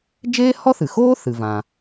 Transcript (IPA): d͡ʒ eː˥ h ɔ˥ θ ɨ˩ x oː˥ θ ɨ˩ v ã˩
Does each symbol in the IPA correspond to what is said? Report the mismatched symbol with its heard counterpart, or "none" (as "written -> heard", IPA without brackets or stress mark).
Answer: none